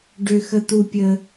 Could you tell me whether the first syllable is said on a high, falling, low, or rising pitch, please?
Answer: high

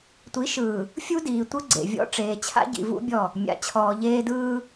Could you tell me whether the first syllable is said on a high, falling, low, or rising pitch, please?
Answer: rising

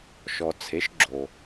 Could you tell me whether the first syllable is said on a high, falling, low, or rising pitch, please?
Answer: low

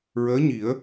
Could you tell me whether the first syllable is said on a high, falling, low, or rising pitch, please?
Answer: rising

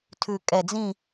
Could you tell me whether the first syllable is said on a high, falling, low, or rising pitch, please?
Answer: low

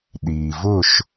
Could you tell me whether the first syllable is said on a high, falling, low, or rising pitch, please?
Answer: low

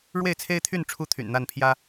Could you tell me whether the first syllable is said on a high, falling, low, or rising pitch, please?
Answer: falling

